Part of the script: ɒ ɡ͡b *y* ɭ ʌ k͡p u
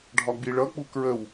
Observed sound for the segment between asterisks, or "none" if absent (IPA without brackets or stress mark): i